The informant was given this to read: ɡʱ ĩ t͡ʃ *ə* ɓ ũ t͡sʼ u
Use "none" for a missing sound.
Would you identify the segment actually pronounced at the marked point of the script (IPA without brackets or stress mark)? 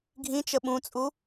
ə